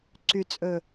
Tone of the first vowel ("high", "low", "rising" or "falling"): low